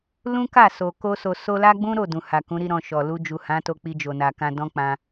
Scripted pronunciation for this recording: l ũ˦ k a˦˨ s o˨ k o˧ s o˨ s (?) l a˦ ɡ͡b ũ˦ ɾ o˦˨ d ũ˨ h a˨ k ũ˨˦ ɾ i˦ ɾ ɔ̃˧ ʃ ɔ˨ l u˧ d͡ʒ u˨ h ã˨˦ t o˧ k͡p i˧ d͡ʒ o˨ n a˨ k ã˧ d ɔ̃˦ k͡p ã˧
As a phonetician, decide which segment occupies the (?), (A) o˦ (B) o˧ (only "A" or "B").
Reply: B